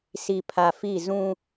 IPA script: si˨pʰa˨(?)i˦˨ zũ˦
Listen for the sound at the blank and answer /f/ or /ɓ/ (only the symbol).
f